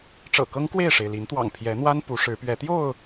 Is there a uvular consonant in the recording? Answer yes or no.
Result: no